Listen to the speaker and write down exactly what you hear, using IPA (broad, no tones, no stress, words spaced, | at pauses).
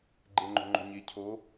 ɡ͡ǃeŋ͡ǃo̤ŋ͡ǃo̤ɲe cʰo